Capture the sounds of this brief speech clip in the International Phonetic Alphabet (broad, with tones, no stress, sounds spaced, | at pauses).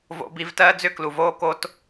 v o̰˧ b i˧ v t ɜː˦ d͡z ʏ˦ k l u˨ v oː˦ k o˦ t